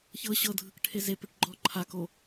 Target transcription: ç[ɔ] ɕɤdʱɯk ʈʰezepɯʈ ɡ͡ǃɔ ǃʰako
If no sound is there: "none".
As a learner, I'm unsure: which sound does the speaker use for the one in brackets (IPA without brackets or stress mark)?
ɤ